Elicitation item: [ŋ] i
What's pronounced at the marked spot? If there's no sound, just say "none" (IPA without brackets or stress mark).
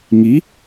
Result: ŋ